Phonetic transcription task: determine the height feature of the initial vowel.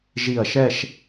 high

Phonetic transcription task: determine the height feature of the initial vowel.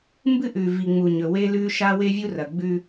high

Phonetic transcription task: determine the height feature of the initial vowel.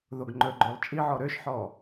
mid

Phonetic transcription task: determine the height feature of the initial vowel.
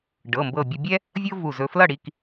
mid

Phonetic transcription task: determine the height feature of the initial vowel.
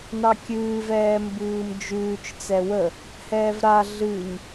low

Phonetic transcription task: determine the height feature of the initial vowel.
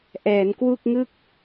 mid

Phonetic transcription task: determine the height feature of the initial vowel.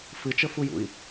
high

